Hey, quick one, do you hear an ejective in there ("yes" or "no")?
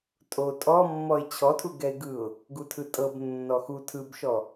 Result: yes